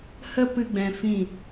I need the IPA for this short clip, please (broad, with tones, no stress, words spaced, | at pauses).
hə˦ pɨ˦ɡ͡bɛ̃˧fĩ˦˨